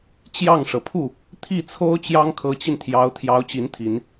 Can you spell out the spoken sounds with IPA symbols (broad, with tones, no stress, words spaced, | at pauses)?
t͡ɕjɑ˥˩ŋʂɤ˩ pʰu˥˩ | t̪ʰi˥˩t͡sʰo˥ʊ̯ t͡ɕjɑ˥ŋkʰɤ˧˥t͡ɕi˧nt̪ʰjɑ˧˥ʊ̯ t̪ʰjɑ˧˥ʊ̯t͡ɕi˧˥nt̪ʰi˨˩˦n